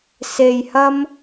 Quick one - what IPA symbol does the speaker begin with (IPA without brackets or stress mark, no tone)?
s